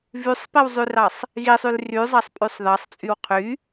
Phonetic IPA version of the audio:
vysˤpiwzˤyrɑsˤ | ɣisˤyl ryzˤɑsˤpʼysˤ ðɑsˤt͡sʼyw qʰy

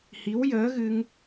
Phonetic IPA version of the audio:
hi˧˥wjəː˧˥ɣɨ˧ŋ

